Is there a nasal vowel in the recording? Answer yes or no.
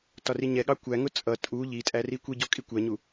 no